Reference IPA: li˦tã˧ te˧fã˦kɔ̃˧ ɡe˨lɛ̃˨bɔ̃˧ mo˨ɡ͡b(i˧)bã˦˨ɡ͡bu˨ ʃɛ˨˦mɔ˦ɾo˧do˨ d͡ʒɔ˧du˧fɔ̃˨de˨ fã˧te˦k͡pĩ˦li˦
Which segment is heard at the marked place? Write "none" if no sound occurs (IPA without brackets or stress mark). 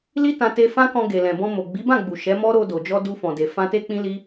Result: i˨˦